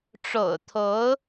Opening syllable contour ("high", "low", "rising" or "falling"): low